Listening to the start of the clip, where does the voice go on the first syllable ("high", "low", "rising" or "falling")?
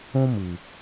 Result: high